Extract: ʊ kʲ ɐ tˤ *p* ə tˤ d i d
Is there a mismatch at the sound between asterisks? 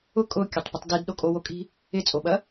no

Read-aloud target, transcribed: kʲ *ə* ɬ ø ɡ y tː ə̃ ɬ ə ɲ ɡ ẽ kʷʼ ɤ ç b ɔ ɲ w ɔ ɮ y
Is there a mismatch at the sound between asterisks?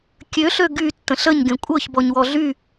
yes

